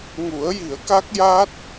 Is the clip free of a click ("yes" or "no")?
yes